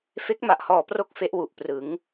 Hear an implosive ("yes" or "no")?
no